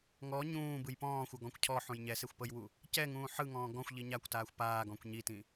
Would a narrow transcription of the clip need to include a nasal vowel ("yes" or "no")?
yes